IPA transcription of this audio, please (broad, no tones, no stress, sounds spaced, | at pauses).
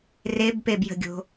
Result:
r e b p e b j ə̤ ɡʲ o̤